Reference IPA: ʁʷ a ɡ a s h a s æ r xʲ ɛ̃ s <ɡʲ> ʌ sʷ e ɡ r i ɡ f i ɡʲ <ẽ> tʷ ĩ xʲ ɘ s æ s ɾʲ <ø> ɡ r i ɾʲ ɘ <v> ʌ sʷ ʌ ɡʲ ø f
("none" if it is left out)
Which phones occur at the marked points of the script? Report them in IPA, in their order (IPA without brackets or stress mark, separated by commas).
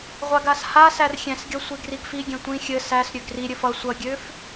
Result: ɡʲ, ɛ̃, ø, f